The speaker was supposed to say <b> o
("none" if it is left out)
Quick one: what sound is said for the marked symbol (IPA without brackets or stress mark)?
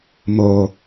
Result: m